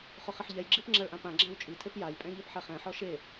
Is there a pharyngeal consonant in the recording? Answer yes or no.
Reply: yes